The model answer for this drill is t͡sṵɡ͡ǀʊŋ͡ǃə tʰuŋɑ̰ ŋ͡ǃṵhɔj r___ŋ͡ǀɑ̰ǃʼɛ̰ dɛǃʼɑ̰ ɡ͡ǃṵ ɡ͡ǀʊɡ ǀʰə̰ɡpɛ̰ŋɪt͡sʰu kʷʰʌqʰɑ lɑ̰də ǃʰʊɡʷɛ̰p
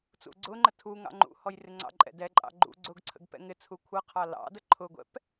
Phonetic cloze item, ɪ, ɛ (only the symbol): ɪ